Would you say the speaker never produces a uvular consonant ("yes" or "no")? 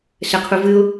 no